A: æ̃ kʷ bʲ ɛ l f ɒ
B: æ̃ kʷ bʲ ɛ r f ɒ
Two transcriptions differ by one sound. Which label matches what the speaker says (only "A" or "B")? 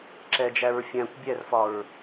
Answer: B